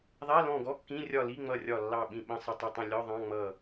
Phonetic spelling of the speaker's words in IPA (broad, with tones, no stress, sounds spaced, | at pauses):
ðˤ ɛ˧˥˧ l ɔ̃˦˨ ɡ ɔ˧˥˧ kː ĩ˧˥˧ rʲ ɒ˦˨ l i˧˥˧ ŋ͡m ʌ˦˨ rʲ ɒ˦˨ lː ɑ˦˨ ɓ ĩ˦˨ ɓ ə̃˧˥˧ sˤ ə˦˨ tˤ ə˦˨ tˤ ə̃˦˨ lʲ ɔ˧˥˧ ðˤ ɑ̃˧˥˧ ŋ͡m ʌ˦˨